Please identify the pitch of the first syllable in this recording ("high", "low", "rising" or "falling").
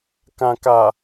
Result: low